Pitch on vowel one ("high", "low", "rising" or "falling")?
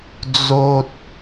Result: low